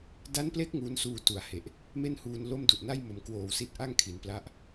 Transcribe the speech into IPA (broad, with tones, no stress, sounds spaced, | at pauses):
d a˦˥ n p l e˦˥ k̚ ŋ uː˦˥ n s uː˧ t u˩˦ a̯ h e˨˩ ʔ | m e˥˩ n h uː˧ n l o˥˩ m d u˨˩ ʔ n a˥˩ j m o˩˦ m k w oː˨˩ w s i˥˩ t̚ ʔ a˥˩ ŋ kʰ i˩˦ n p l a˦˥ ʔ